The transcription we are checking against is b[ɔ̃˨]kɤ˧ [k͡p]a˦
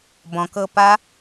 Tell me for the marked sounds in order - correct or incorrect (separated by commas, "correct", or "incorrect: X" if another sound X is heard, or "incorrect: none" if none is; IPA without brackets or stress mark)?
correct, incorrect: p